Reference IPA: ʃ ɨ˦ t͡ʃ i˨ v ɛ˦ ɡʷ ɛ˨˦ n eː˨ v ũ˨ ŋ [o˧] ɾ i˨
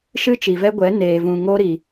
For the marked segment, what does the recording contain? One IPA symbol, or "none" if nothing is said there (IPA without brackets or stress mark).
o˧